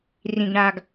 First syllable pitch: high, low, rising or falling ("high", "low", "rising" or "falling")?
low